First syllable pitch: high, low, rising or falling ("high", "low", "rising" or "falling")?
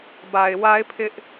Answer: low